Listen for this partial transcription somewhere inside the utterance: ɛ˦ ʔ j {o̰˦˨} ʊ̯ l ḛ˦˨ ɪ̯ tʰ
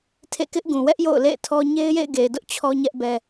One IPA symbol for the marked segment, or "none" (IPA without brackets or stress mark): o̰˦˨